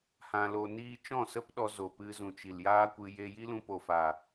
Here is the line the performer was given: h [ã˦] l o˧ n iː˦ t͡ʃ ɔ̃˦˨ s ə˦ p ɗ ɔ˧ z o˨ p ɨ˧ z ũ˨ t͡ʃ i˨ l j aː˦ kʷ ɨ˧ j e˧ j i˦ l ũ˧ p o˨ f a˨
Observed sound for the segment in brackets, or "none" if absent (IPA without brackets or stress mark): ã˧